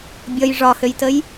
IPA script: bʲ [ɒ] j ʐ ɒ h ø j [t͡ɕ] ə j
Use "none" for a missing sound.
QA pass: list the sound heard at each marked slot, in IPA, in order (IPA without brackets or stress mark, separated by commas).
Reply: ʌ, t